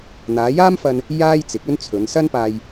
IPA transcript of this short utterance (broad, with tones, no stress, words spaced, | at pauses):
n̪aː˨˧jaː˥mfɐ˧n | jaː˥jt͡sɪ˨˥k̚ɵ˥nt͡sʰɵ˨˧n sɐ˥npaː˧j